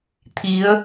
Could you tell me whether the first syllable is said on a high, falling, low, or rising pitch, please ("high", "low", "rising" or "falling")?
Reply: rising